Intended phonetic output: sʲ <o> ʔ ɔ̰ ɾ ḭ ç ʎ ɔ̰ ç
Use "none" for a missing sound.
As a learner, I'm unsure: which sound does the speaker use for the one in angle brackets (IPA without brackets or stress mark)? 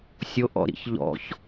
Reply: o